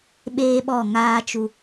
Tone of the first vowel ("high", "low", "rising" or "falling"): high